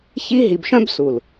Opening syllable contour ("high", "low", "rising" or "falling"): high